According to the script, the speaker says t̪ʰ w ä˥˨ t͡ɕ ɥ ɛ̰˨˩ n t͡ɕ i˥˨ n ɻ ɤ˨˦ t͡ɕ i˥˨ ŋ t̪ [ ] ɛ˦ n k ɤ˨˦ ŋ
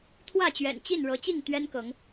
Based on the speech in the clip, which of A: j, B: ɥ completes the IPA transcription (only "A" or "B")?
B